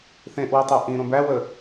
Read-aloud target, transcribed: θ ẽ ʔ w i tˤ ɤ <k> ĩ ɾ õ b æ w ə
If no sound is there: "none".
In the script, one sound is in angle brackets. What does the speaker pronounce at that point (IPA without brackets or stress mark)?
ʔ